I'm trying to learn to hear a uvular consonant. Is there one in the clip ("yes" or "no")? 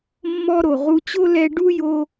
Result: yes